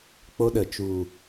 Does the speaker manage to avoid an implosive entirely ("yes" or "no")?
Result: no